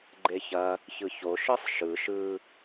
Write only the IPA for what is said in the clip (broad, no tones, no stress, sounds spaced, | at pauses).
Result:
ɡ͡ǃ e ç ɐ | ç ɯ ç o ʃ ɯ sˤ ʃ ɯ ʃ ɯ